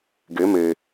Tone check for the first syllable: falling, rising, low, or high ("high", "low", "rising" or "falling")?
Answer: rising